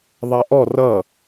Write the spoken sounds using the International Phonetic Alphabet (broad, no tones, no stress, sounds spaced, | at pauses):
ðˤ ɛ ʔ ɔ r ʌ